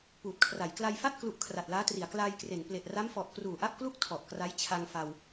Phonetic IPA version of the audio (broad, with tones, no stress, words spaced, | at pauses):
puː˨˩t̚kʰra˩˦j kla˧jfa˥˩t̚ klu˥˩ʔ kʰra˨˩t̚laː˦˥tri˩˦a̯ klaː˧jkre˩˦n ple˨˩ʔra˦˥mfɔ˨˩ʔ kruː˨˩ʔa˥˩p̚klu˥˩k̚ tʰɔ˨˩ʔkra˦˥j t͡ɕʰa˧ŋfa˧w